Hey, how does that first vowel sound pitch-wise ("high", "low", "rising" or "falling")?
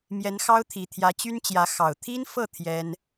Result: rising